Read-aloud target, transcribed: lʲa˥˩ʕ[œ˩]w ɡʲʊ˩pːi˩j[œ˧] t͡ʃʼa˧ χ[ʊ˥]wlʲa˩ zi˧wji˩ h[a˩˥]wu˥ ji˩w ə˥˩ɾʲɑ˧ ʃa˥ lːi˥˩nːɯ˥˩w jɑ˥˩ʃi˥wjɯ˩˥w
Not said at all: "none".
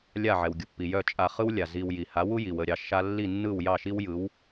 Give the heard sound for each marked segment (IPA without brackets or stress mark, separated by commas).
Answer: ɛ˩, œ˥˩, ɯ˥, a˩˥